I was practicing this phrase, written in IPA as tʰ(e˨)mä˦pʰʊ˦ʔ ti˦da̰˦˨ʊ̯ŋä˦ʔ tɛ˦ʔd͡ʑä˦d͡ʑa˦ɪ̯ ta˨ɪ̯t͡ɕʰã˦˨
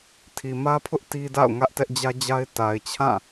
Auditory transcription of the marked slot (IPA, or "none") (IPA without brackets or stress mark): i˨